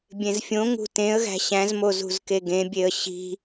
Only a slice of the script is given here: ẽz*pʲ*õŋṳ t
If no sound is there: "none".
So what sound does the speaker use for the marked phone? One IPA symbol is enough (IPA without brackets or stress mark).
fʲ